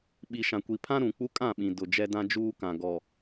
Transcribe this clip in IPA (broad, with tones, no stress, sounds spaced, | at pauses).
ɓ i˨ ʃ ã˨ kʷ i˨ pʰ ã˦ ɾ ũ˨ k͡p u˦ kʼ ã˦˨ ɓ ĩ˨ d ʊ˨ d͡ʒ ɛ˦ d ã˦ d͡ʒ uː˦ k ã˨ ɡ ɔ˨